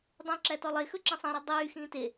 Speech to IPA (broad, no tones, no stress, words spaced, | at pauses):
dˤũ ǁætɔlˠexɵ ǁĩsˤæ̃ɾø dˤyːxĩː te